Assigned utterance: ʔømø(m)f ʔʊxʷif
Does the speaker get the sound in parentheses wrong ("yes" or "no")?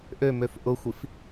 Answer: yes